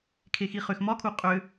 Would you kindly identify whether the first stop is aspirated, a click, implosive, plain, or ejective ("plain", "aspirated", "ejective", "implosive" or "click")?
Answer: aspirated